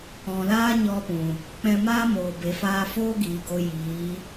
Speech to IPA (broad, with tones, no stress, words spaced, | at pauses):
ɔ̃˨laː˦ ɲɔ˧pũ˨ | k͡pɛ̃˧maː˦ moː˨ be˨faː˧foː˦ɡiː˨ ɡo˧ jiː˨˦